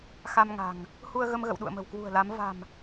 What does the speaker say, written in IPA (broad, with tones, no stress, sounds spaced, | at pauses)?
x a˧ m ŋ a̤˨˩ ŋ | h u˧ ə̯ ɣ ə˧ m ɣ ə̰˧˨ w ɗ ṵ˧˨ ə̯ m ə̤˨˩ w k w ṳ˨˩ ə̯ l a˨˦ m v a̤˨˩ m